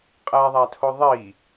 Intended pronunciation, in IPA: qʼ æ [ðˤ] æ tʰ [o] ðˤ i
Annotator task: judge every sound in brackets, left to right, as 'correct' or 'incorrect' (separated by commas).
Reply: correct, correct